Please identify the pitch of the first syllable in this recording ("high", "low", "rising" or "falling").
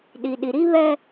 low